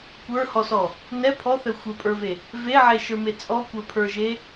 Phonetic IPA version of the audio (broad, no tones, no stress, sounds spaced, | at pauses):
kʷ ə˞ h ɔ s ɔ | n ɛ pʰ ɔ θ ɛ xʷ ə˞ pʼ ə˞ v e | v e ʕ e ʃ ə˞ m e t͡sʼ ɔ kʷ ə˞ pʰ ə˞ ʒ e